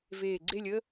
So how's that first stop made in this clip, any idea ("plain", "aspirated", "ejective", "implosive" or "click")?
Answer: click